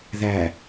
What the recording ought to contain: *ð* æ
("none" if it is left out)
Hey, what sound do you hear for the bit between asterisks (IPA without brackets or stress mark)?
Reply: ð